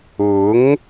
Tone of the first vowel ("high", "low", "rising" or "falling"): rising